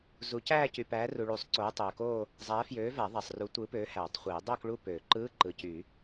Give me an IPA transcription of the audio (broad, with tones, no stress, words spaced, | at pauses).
zu˨˥cæː˥˧cy˨ pæː˨˥ru˨ɭu˨˩˦sˤ ǀoː˨˥tˤøː˨koː˥˧ | zˤæː˨˥fjøː˨˥væ˨˩˦ ðˤæ˨sˤru˨˥tʷɯː˨˥pøː˨˥ hæː˨˩˦tˤχʷiː˨˩˦ dˤo˥˧k ɭu˥˧pøː˨˩˦ ǃɯː˧˥˧ǃɯ˨cy˨˩˦